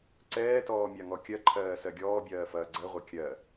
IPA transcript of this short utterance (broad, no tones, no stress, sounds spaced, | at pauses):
ǀ ɛː t ɔː mʲ a ŋ ɔ kʲ ɜ ǃʰ ɜː s ɜ ɡʲ ɔː bʲ ɜː f ɐː ɡ͡ǀ ɜ ʁʷ ɜ kʲ ɜ